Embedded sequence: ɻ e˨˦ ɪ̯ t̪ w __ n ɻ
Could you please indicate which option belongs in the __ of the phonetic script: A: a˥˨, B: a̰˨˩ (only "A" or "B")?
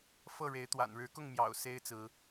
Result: B